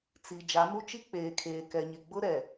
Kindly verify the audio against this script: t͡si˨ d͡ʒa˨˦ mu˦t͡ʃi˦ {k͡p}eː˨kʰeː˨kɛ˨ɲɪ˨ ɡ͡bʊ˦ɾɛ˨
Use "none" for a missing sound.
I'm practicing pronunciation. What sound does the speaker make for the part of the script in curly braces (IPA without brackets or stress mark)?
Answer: k͡p